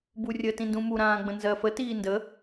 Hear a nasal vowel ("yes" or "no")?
yes